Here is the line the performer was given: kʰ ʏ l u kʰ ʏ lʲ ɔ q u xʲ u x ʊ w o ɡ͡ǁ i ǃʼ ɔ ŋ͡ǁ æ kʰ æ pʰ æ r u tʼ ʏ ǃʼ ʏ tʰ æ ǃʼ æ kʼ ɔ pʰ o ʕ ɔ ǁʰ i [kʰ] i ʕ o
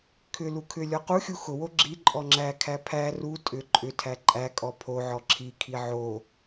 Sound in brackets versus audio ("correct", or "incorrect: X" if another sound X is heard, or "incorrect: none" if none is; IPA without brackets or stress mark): correct